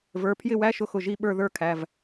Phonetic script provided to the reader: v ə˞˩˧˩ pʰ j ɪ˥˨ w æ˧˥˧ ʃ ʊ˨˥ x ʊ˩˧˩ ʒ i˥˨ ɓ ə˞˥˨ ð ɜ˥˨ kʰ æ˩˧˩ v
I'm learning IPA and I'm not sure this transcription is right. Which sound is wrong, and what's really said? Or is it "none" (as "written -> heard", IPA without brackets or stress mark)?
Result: ɜ˥˨ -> ə˞˥˨